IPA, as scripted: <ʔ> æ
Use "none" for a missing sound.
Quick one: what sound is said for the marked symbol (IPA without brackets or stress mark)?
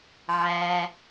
ʕ